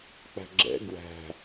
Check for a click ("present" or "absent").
present